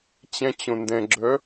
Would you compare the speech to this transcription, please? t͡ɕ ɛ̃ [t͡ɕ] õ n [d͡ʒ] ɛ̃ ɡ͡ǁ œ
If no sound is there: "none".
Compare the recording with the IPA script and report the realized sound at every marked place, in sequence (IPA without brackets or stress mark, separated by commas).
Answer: t͡ɕ, d